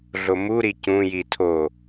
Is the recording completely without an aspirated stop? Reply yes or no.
no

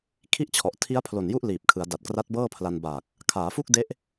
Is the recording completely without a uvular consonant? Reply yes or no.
yes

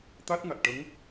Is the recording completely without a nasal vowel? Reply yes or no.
yes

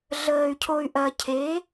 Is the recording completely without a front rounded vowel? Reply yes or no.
no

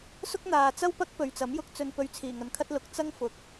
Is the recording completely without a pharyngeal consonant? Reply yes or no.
yes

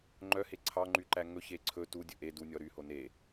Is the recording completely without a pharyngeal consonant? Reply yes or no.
yes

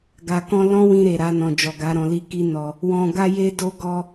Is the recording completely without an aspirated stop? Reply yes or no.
yes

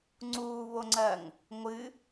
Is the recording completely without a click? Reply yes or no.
no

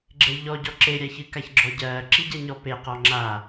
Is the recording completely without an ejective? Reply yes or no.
yes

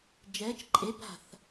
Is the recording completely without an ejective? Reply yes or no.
no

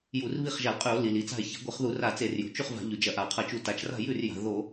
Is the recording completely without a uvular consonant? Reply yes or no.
no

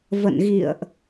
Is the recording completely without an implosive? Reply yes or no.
yes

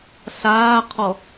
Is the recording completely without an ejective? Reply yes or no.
yes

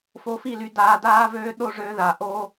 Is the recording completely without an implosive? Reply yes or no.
no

